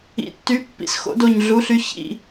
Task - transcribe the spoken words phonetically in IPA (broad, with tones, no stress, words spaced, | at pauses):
ḭ˩˧˩tːy˨˥pːḭ˧˩s xo̰˨˥do˧˩ɲɮu˨˥ɬy˨˥ çḭ˩˧˩